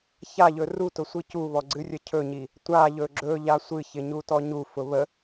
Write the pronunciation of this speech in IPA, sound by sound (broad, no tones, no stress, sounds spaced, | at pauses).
ç a ʎ ɵ r u t ʊ sʷ i c u β ɔ ɡ͡ǀ ɨ rʲ ə cʰ ɵ ɲ i | tʷ a ʎ ɵ ɡ͡ǁ ɵ ʎ a sʷ ɨ ç ɪ ɲ u t ɔ ɲ u f ʊ β ə